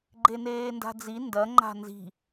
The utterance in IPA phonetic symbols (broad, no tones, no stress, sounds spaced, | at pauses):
ɡ͡ǃ e n eː n d a̤ d͡z i n d ɐ ŋ͡ǃ a̤ n z i̤